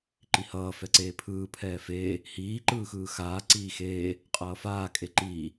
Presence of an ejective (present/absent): present